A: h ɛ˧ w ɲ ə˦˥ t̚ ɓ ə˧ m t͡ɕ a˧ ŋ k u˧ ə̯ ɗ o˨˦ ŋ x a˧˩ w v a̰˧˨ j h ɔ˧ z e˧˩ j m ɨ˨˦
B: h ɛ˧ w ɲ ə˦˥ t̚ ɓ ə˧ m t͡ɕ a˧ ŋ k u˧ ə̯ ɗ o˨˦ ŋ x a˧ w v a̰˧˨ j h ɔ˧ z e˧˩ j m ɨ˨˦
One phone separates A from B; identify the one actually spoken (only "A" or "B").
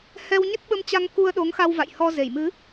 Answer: B